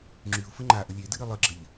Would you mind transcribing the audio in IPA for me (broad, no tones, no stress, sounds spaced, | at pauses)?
ŋ͡ǁ y ʊ̯ f ə ŋ͡ǃ a ʔ ə lʲ e d ɨ ɾ ɨ lˠ ɨ ɡ͡ǁ ə ʎ